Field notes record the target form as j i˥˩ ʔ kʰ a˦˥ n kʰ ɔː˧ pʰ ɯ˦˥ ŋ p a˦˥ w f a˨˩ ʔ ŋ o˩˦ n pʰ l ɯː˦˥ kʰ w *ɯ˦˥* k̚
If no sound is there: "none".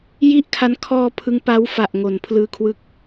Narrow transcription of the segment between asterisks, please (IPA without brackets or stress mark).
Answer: ɯ˦˥